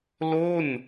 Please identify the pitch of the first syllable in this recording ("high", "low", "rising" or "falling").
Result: falling